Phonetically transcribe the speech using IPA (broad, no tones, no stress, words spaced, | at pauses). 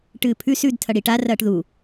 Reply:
ʈɨːpʰʉ sʉd tʰɐɽiʈa rɐːʈðu